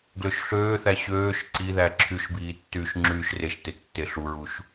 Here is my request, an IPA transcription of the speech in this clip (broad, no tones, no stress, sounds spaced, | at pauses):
ɡ l ø ʃ ɬ øː θ æ ɕ øː ʃ ǀ i ð æ ǁʰ y ʃ b iː tː yː ʃ ŋ͡ǁ yː ʃ r e ʃ t e tː e ɬ u ɹ u ʃ